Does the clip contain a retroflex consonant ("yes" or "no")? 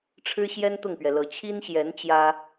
yes